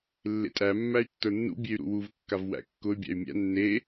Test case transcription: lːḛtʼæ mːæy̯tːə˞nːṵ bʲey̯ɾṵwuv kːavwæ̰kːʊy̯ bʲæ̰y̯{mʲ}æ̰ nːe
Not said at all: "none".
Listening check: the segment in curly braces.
mʲ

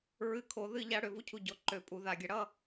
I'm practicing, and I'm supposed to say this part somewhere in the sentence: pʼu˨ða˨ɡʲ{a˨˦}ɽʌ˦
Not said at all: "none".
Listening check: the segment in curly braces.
a˨˦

